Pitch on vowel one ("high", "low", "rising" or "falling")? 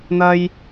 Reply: high